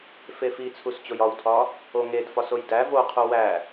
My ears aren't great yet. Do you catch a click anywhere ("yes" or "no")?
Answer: no